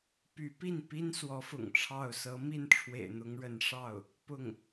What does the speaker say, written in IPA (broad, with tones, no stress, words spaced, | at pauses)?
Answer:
py˧˥pi˥˩npi˥n swɔ˧˥fʊ̰˨˩ŋʈ͡ʂʰɑ˥˩ʊ̯ sɤ˧˥ mi˥˩nʈ͡ʂʰwḛ˨˩ɪ̯ n̪ʊ˧˥ŋɻə˧˥n ʂɑ˥˩ʊ̯ | pʊ˥˩ŋ